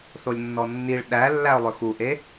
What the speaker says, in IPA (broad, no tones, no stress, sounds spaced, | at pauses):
θ o lʲ nː ɔ nː i ɭ ɗ æ lː æ ʊ̯ lˠ ɵ x u ʔ e